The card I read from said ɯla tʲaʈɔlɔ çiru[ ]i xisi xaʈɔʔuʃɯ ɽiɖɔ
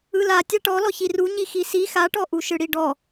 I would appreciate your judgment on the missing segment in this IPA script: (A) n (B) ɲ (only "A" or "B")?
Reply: B